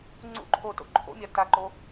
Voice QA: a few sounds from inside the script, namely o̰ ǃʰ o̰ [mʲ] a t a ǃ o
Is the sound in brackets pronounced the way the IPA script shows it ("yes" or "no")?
yes